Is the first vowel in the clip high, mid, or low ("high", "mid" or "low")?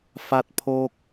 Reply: low